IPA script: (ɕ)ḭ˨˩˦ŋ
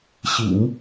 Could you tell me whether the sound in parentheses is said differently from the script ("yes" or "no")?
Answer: no